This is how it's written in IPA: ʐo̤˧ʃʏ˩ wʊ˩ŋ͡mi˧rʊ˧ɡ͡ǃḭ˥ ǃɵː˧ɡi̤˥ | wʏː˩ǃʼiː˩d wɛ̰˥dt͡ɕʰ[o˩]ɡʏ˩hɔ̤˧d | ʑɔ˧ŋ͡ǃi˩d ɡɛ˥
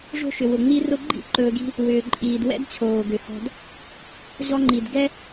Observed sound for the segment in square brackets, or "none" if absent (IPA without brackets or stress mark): oː˩